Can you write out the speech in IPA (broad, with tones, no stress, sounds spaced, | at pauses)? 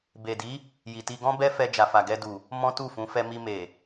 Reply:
b e˨ d i˨˦ | j i˨ t i˧ ɡ ɔ̃˦ b ɛ˦ f ɛ˧ d͡ʒ a˨ f a˨ ɡ ɛ˧ d u˨ | m ɔ̃˦ t u˦˨ f ũ˨˦ f ɛ˧ m i˧ m e˨